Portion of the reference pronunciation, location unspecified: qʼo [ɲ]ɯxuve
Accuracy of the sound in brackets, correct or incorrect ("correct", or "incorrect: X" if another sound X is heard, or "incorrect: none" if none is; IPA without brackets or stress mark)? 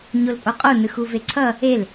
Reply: incorrect: n